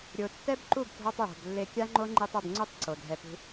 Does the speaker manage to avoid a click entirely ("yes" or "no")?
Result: no